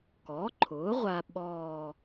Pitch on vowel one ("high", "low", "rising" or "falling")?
rising